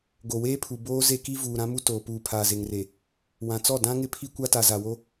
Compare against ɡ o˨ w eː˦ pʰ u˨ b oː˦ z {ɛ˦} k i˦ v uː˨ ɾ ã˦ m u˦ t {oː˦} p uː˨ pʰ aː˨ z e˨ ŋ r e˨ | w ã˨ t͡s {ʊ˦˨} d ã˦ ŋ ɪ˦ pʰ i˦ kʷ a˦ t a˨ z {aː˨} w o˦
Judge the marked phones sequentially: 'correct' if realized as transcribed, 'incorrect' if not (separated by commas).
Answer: incorrect, incorrect, incorrect, incorrect